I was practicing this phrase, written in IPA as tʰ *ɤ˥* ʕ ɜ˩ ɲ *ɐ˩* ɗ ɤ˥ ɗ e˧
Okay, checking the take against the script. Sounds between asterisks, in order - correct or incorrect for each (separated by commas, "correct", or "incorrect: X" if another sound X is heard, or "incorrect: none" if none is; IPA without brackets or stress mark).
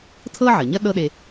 correct, incorrect: ɐ˥